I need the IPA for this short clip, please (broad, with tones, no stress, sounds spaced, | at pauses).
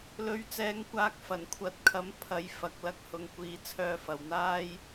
l ɵ˨ ɥ t͡s ɛː˨˧ ŋ kʷ aː˨˥ k̚ f ɐ˨˩ n kʷʰ ɐ˨˥ t̚ kʰ ɐ˨˥ m pʰ ɐ˨˧ j f ɐ˨˥ k̚ l ɐ˥ k̚ h ʊ˨ ŋ kʷ iː˨ t͡sʰ œː˧ f ɐ˨ w n̪ aː˥ j